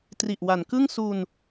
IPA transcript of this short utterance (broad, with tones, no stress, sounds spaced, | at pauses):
t r i˨˩ ʔ w a˩˦ n k ɯ˥˩ ŋ s u˧ n